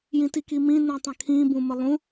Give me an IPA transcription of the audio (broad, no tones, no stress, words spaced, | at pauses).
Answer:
jĩtikimĩ nũtˤə̃kʰĩ bũməlˠũ